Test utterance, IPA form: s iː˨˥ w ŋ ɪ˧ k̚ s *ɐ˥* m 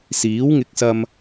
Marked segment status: incorrect: ɐ˧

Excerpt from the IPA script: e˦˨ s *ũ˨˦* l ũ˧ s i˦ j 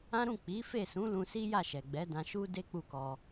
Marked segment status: correct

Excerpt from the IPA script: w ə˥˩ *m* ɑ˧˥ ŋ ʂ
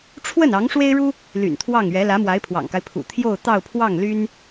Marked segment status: incorrect: n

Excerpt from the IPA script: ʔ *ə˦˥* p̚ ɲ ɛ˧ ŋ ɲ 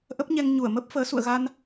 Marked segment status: correct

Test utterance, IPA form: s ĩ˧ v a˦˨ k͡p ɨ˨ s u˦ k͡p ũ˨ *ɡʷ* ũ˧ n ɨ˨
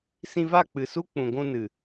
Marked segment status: correct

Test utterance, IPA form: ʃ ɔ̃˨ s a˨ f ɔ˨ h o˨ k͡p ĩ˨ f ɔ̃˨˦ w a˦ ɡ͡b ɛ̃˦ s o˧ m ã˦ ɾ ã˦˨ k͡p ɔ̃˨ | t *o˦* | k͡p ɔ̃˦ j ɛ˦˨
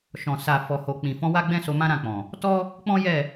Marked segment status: incorrect: ɔ˦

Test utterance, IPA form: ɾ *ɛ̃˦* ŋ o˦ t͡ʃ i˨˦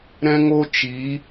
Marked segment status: correct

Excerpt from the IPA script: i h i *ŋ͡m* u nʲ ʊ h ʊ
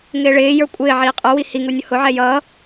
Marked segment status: incorrect: ŋ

